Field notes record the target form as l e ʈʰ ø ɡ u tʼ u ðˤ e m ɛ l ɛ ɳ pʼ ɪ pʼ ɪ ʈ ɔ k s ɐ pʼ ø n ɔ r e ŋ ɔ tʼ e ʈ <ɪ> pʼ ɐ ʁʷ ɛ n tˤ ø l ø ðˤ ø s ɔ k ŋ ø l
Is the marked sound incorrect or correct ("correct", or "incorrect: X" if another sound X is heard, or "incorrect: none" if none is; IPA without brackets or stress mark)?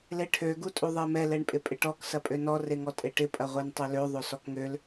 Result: correct